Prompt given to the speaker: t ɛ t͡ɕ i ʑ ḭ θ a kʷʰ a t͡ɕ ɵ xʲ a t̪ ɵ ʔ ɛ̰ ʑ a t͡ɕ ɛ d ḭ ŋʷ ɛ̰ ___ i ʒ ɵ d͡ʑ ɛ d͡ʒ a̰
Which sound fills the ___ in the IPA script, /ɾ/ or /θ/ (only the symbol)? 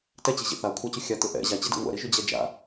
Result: ɾ